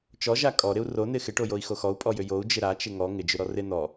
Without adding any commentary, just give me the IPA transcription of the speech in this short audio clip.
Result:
t͡ʃ ɔ ʒ a kʼ ɔ ɾ ɪ u̯ r o n ɪ x ɪ ʈ o j o i̯ x o x ɔ u̯ pʼ ɔ j ʏ j o u̯ d͡ʒ ɪ ɾ a t͡ʃ ɪ ŋ ɔ ŋ ɪ d͡ʒ ʏ ɾ ɔ r ɪ n ɔ

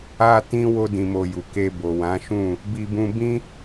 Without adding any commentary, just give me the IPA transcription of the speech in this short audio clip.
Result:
a˦ t ĩ˦ w o˦ d ĩ˧ m o˧ j u˨ k e˧ b o˨ w ã˨˦ ʃ ũ˦˨ | b i˦ b ũ˦ b ĩ˦

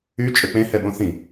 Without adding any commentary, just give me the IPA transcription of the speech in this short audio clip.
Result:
y t͡ʃʼ ø k͡p ẽ h ɛ ɓ õ θ ĩ

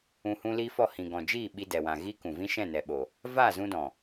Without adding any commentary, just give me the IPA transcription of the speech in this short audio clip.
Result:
ũ˧ h ũ˦ l iː˦ f ɔ˦˨ h ĩ˨ ɡ ɔ̃˨ d͡ʒ iː˦˨ ɓ i˧ d ɛ˨ w ã˨ ɣ iː˦ k ũ˨ v ĩ˦ ʃ ɛ̃˦˨ n ɛ˨ ɓ o˨ | v aː˦˨ z ũ˧ d ɔ̃˨

